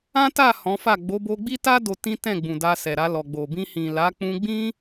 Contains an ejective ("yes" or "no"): no